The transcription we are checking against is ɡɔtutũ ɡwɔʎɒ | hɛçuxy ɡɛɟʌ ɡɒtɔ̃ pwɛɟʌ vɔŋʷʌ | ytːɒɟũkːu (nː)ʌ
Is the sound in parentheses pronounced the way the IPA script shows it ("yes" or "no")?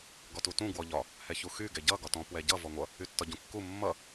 no